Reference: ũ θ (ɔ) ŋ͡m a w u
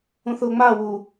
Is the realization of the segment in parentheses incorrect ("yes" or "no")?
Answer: yes